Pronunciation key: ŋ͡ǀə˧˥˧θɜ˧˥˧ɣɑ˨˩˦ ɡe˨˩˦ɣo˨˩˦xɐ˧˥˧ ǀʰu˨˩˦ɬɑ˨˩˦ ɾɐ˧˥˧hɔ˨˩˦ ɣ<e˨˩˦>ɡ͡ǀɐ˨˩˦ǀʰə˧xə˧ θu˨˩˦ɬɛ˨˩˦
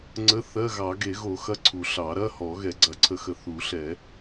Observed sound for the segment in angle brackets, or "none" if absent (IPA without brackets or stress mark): ɛ˨˩˦